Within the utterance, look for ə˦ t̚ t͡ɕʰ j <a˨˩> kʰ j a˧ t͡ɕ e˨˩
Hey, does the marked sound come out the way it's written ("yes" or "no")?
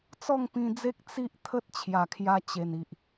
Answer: yes